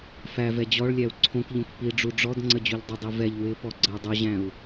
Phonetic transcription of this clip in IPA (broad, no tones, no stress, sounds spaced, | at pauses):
f æ v ɛ d͡ʑ ɔ ɭ lʲ æ u̯ ǀʰ õ k ʎ õ k p i ɖ͡ʐ u ɖ͡ʐ ɔ d ŋ͡ǀ ə d͡ʑ u ʎ dˤ ɪ dˤ i v ɛ ʎ w ɪ p ɔ ɡ͡ǀ ə u̯ dˤ u ʑ æ̃ u̯